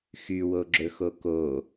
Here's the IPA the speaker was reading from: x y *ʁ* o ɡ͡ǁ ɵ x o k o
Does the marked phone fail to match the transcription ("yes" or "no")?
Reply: yes